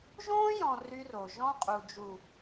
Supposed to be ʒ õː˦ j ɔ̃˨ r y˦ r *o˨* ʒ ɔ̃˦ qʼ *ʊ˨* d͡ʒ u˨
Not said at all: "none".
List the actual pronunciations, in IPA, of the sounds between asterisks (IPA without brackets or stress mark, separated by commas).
o˨, u˨